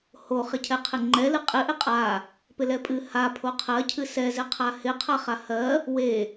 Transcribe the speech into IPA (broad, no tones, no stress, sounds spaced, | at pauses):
h o χ ɪ cʰ ɛ qʰ ɪ ŋ͡ǃ ɛ l ɨ qʼ ɪ ʔ ɪ qʼ a | p ɪ l ɛ pʼ ɨ h a pʰ o qʰ ɜ cʰ ɨ s ɛ z ɪ qʰ a h ɪ qʰ a χ a h ɜ | w e